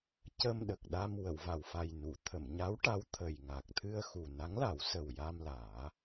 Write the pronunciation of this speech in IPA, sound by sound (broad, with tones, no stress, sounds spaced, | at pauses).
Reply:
c ə˧ m ɗ ə˨˩ k̚ ɗ a˧ m w ə˨˩˨ w v a˨˩ w f a˨˩ j n u˨˩˨ t̪ʰ ə˨˩˨ m ɲ a˧˥ w ʈ a˧˥ w t̪ʰ ə˨˩ j ŋ a˨˩ k̚ t̪ʰ ɨ˧ ə̯ x u˨˩ n a˧˥ ŋ l a˨˩˦ w s ə˨˩ w j a˧ m l aː˨˩˦